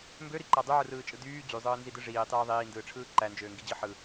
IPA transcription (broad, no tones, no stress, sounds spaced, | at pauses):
m b ø ɾ i ǃ æ dˤ y ʕ ɯ r ɯː t͡ʃʼ ɯ d yː d͡ʑ y zˤ ɯː n z i d ɯ ʐ iː tˤ iː ðˤ iː n d ɯː ʈ͡ʂʰ ɯː ǃ æ n d͡ʒ øː ŋ ɡ i d͡ʑ ɯ ħ ɯ